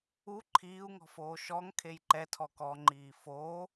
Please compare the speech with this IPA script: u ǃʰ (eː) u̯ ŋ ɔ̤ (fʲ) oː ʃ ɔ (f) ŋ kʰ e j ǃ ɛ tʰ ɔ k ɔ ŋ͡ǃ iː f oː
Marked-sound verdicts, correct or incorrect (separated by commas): incorrect, incorrect, incorrect